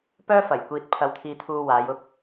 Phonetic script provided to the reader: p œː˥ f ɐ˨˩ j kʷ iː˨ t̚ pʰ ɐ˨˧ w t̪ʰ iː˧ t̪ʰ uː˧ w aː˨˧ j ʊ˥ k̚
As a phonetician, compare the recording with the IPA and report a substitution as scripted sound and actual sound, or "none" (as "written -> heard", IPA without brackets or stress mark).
none